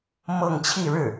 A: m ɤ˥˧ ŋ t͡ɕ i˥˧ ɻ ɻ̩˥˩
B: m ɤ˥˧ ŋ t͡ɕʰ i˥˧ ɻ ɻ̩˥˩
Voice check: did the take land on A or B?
B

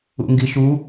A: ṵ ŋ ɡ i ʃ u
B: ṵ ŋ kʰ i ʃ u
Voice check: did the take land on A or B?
A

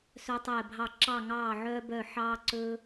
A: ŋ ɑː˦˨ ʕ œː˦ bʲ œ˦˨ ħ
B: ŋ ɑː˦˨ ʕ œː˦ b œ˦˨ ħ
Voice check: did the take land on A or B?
B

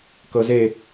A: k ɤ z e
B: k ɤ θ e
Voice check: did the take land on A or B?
A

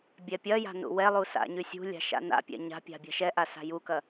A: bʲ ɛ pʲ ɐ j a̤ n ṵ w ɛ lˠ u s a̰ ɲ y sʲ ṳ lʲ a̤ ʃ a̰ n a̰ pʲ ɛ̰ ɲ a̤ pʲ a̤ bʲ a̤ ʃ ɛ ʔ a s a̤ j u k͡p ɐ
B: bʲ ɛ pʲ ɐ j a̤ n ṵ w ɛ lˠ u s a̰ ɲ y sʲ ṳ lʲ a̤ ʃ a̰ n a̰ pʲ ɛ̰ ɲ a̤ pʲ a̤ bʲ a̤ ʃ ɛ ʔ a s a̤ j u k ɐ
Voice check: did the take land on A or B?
B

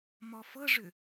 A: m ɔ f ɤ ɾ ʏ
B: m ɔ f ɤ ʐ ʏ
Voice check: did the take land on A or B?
B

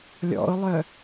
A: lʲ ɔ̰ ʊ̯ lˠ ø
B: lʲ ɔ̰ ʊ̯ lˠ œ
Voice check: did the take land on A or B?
B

